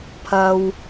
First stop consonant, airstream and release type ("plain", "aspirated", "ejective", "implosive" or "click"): aspirated